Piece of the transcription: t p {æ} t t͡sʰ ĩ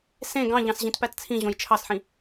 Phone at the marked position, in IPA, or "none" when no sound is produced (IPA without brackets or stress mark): æ